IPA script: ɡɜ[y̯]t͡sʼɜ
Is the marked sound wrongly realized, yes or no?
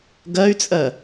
no